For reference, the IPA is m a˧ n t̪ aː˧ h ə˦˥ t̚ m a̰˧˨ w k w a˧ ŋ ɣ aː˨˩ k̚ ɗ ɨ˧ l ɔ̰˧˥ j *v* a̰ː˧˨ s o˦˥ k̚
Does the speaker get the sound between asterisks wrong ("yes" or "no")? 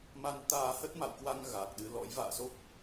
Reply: no